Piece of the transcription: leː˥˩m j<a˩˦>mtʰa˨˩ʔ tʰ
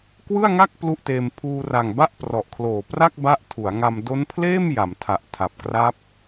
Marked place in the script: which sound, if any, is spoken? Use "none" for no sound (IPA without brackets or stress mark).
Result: a˩˦